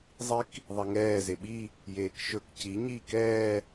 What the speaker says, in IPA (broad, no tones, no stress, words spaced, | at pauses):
zˤik | ðˤeŋɛː zeɓi | jeːkʃɵk ci ɲiːkɛː